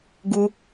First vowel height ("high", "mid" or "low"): high